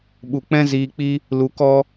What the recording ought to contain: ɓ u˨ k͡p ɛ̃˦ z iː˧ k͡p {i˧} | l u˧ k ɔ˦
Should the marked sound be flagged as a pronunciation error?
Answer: yes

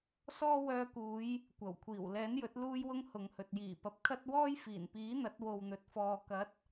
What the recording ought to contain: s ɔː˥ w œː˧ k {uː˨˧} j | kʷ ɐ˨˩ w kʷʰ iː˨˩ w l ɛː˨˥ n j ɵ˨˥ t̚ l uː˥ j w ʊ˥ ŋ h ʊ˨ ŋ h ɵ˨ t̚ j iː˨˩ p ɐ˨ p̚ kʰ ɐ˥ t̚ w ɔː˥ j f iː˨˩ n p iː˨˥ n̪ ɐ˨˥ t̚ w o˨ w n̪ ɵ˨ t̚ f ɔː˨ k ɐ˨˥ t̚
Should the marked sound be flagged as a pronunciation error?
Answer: no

